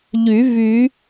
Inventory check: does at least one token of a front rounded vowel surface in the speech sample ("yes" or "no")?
yes